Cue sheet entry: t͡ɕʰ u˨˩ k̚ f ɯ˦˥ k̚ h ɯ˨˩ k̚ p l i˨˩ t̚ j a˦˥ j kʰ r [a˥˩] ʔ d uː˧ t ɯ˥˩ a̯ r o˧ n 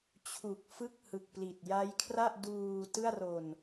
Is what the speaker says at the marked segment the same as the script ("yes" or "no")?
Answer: yes